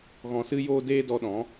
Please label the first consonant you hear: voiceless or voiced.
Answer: voiced